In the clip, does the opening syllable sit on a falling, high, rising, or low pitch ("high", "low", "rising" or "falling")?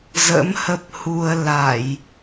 rising